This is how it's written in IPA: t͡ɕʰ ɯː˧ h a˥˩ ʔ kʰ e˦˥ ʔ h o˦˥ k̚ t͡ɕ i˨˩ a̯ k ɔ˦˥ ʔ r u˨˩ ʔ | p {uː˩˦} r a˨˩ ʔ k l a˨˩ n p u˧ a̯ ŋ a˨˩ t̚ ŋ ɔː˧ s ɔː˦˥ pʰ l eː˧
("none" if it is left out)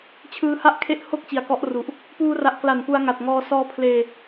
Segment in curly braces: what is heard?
uː˧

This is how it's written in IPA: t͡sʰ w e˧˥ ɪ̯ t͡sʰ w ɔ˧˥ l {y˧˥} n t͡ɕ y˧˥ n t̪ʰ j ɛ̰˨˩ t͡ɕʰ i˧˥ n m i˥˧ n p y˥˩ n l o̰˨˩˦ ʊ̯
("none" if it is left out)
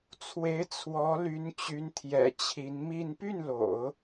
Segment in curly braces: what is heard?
y˧˥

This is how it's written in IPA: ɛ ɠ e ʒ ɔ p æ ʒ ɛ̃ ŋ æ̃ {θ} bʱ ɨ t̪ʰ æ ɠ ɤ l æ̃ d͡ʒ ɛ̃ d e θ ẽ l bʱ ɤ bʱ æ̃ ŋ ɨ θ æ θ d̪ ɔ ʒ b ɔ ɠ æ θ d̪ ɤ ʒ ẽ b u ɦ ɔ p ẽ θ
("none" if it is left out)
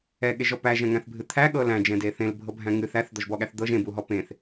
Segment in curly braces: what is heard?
θ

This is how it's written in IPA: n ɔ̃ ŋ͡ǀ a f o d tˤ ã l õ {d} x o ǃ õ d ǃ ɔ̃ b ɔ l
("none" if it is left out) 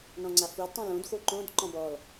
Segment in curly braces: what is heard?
d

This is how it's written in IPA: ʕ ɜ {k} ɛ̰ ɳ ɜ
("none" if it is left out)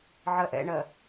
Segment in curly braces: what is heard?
ʔ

